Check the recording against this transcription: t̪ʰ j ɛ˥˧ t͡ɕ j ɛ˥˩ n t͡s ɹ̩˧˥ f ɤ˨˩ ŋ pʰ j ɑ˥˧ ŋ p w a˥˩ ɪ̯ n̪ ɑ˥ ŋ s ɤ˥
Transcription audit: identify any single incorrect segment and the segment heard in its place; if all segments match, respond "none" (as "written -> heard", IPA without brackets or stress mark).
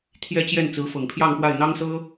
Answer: none